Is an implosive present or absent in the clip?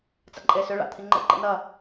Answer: absent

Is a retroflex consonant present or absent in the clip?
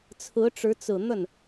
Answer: present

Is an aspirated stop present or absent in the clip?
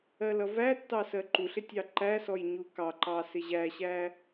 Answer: absent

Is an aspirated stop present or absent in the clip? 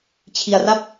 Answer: present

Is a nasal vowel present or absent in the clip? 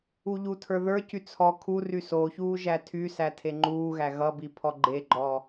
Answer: absent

